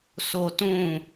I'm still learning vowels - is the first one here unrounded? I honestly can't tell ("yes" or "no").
no